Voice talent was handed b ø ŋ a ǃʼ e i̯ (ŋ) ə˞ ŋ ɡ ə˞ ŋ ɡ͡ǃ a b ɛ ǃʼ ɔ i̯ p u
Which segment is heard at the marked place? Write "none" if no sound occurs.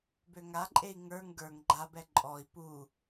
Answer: ŋ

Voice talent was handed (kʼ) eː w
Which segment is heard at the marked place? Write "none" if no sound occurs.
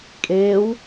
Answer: kʼ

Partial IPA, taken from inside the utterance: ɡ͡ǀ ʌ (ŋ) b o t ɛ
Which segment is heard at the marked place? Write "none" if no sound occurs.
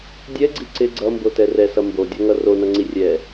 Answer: m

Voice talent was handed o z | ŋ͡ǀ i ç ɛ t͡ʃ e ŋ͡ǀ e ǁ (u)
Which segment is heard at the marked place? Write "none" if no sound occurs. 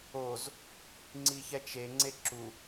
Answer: u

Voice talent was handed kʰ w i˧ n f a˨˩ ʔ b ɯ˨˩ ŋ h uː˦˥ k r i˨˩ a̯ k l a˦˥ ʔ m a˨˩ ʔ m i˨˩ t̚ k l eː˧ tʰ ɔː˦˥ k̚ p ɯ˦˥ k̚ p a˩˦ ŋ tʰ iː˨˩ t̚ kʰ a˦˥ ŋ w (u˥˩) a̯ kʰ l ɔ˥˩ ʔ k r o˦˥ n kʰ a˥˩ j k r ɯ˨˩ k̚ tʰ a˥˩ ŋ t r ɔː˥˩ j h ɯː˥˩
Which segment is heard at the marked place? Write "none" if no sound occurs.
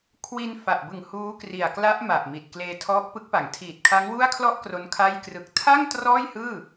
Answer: u˥˩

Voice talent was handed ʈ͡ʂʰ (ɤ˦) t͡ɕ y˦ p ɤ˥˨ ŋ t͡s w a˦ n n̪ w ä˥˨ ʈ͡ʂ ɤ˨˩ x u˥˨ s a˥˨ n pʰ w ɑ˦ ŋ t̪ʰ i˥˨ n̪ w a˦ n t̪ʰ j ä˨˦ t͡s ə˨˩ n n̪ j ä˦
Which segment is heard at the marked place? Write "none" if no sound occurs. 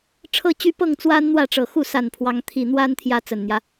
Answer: ɤ˦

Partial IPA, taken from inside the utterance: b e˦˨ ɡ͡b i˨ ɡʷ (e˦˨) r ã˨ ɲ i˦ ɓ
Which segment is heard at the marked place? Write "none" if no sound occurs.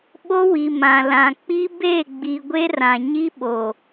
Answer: e˦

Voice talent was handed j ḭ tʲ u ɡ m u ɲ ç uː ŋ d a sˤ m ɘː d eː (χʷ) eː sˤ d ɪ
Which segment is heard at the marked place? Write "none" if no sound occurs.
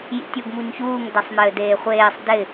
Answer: χʷ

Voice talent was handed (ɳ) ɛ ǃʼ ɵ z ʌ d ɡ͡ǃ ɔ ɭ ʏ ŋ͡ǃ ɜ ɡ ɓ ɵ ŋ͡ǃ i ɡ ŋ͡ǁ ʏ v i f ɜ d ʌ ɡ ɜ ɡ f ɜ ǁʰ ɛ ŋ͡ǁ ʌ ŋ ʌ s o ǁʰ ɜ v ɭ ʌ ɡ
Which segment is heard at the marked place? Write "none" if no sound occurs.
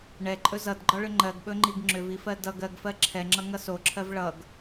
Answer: ɳ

